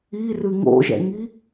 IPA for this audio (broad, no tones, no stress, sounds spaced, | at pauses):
i r ɨ ŋ o̰ ʒ ɛ̰ ŋ i